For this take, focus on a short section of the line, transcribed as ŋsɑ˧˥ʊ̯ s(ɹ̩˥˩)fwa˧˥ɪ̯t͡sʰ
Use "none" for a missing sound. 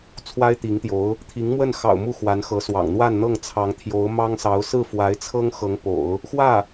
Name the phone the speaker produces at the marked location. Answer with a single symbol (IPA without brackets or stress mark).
ɹ̩˥˩